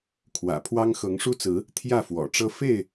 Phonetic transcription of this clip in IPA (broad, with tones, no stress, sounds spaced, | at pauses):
kʰ w ä̰˨˩ pʰ w ɑ˦ ŋ x ɤ˨˦ ŋ ʂ u˦ t͡s ɹ̩˨˦ | t̪ʰ j ä˥˨ f w ɔ̰˨˩ ʈ͡ʂ ɤ˦ f e˥˨ ɪ̯